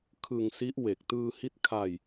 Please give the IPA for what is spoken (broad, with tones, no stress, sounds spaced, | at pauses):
kʰ ɯ˧ ŋ s i˦˥ ʔ w e˨˩ k̚ t ɯː˧ h i˦˥ t̚ kʰ a˧ j